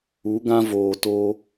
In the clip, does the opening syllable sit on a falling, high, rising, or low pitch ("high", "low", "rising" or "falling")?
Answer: rising